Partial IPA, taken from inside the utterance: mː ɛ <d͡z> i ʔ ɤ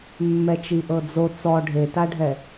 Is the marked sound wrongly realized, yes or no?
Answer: yes